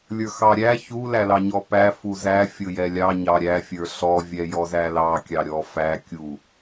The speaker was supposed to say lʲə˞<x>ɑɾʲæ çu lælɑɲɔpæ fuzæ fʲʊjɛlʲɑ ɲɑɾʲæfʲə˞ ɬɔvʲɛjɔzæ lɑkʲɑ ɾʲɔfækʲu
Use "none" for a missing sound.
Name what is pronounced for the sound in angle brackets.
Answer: x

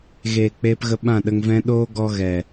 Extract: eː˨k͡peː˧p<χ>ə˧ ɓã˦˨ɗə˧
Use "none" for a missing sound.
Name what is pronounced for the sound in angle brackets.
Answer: ɣ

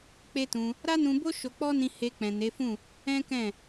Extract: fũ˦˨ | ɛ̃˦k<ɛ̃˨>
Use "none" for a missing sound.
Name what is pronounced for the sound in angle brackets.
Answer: ɛ̃˦˨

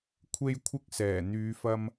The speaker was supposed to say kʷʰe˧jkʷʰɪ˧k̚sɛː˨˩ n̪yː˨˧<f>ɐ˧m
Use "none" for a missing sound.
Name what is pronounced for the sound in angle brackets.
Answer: f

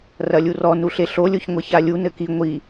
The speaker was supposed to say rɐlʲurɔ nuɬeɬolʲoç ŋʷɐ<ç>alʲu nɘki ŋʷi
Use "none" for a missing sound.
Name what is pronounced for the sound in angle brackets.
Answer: ç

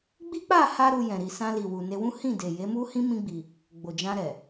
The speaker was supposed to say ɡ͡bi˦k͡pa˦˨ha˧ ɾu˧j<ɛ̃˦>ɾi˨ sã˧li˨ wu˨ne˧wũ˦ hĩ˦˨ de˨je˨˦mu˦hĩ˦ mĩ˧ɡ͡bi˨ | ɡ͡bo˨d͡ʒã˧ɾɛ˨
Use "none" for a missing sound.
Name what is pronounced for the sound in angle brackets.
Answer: ɛ̃˨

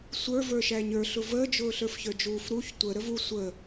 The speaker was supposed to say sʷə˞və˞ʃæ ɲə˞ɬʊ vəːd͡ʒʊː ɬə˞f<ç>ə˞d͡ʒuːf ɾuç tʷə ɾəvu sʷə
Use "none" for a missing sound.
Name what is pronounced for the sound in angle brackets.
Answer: ç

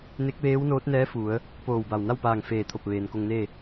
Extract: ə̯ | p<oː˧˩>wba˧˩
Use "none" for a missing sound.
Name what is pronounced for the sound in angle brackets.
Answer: oː˧˩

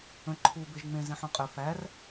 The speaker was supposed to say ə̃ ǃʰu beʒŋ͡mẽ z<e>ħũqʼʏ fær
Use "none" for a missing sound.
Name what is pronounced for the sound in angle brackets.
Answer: ẽ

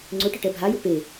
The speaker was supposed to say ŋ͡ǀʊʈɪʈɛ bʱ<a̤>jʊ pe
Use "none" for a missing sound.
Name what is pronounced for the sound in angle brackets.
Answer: a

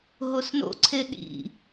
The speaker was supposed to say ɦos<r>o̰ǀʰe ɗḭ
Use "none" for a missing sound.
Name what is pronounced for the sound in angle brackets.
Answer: n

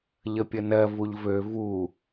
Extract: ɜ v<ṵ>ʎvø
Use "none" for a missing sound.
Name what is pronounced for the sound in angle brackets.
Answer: u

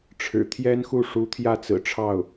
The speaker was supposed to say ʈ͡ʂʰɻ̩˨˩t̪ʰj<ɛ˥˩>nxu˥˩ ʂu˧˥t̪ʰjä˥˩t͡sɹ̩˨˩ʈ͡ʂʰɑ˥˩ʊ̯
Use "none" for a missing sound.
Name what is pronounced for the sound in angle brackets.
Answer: ɛ˥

